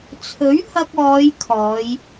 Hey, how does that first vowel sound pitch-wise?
rising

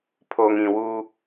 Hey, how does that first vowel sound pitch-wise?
low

